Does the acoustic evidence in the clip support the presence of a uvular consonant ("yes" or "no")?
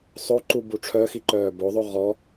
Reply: yes